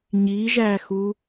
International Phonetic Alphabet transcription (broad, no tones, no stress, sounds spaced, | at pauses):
ɲ iː ʒ æː x uː